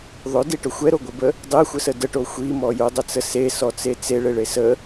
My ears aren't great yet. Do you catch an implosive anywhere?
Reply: no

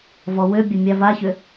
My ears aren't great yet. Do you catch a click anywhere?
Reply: no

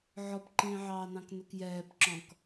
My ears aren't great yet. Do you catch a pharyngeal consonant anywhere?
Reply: yes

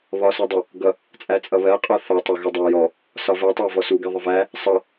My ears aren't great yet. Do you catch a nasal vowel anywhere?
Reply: no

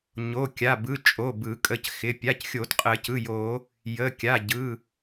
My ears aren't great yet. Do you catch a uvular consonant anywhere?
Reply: yes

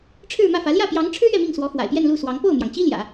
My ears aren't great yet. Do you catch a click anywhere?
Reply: no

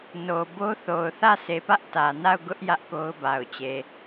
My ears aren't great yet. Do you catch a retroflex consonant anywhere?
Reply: no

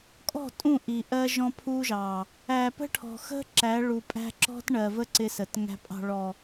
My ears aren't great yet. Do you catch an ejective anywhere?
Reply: yes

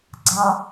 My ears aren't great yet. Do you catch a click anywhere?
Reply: yes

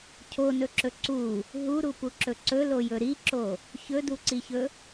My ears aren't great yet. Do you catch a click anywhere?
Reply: yes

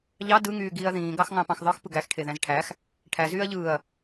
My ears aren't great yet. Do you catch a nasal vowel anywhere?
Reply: yes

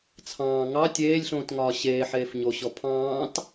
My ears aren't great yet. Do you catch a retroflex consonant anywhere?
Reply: no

